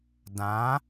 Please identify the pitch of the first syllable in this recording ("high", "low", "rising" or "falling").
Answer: rising